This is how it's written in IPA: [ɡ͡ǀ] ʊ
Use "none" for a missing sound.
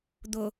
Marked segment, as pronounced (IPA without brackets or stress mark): d̪